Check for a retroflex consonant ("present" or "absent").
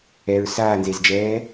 absent